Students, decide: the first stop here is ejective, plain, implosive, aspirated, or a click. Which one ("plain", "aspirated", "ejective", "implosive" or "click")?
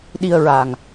implosive